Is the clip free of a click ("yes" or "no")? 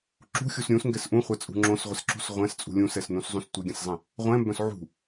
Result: no